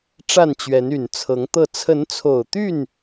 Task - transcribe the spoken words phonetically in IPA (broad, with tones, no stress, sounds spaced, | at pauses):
ʈ͡ʂ a˥˨ n t͡ɕ ɥ ɛ˨˦ n y˨˩ n t͡sʰ ɤ˨˦ ŋ t̪ ɤ˥˨ t͡sʰ ə˨˦ n t͡sʰ o˨˩ ʊ̯ t̪ y˥˨ n